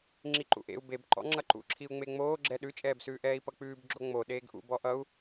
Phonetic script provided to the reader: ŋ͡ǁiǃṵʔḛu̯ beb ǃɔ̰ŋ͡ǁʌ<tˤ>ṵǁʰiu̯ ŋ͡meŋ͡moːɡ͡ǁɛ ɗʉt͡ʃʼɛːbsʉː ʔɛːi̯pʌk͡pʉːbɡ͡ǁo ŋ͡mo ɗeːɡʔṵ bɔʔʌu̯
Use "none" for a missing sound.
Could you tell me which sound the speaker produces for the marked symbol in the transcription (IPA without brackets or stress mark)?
ǃ